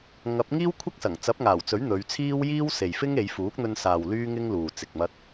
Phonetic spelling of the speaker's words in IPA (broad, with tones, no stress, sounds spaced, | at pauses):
ŋ ɐ˨˥ p̚ ŋ iː˥ w kʷʰ ɐ˥ k̚ s ɐ˨˩ ŋ t͡s ɐ˨˥ p̚ ŋ aː˨˩ w t͡s ɵ˨˥ ɥ n̪ ɵ˨˧ ɥ t͡sʰ iː˥ w j iː˥ w s e˨ j f ɪ˥ ŋ e˨˧ j f uː˨˥ k̚ n̪ ɵ˧ n s aː˨ w l yː˥ ŋ ɪ˥ ŋ l uː˨ t͡s ɪ˧ k̚ m ɐ˥ t̚